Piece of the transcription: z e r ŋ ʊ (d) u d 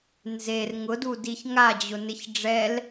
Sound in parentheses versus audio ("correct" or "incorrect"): correct